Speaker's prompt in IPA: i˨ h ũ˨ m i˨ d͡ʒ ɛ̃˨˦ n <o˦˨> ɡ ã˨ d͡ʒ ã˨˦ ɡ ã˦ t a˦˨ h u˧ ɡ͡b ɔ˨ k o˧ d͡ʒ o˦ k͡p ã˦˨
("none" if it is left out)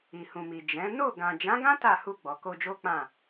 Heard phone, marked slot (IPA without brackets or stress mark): o˦˨